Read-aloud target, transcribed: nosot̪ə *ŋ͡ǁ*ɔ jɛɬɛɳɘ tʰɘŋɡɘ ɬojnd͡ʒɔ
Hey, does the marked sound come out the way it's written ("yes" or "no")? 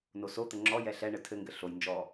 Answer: yes